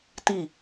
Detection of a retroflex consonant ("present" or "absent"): absent